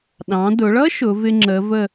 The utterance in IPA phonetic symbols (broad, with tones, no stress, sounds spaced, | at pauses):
ɗ ɑ̃˩˧ d ʊ˩˧ ɭ ʌ˥ ʃ ʊ˩˧ v ɪ˧ ŋ͡ǁ ə˩˧ v ə˧˩